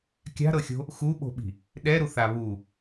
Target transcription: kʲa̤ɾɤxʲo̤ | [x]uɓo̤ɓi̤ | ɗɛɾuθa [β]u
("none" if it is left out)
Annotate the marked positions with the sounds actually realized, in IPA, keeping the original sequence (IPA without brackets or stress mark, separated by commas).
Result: x, β